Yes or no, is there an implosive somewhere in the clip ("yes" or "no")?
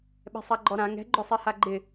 yes